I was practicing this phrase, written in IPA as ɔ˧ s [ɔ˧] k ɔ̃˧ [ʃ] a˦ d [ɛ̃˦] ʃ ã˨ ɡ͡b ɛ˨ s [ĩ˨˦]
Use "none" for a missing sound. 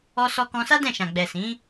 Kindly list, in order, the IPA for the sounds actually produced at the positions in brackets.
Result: ɔ˧, s, ɛ̃˦˨, ĩ˨˦

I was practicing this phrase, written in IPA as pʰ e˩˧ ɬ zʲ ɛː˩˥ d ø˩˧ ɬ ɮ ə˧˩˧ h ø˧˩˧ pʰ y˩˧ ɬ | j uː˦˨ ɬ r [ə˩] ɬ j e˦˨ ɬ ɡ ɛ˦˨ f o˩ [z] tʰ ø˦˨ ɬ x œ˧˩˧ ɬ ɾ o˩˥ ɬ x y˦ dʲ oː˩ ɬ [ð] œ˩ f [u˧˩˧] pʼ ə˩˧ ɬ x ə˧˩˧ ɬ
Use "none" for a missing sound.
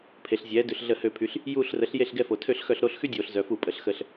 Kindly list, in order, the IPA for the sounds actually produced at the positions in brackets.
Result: ə˩˥, none, z, u˧˩˧

